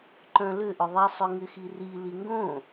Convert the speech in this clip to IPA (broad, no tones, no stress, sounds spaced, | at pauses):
ǃ œ̃ l ʏ ʔ ʏ ðˤ i sˤ ʏ ŋ ɪ x i r i l i ŋ ɡ õ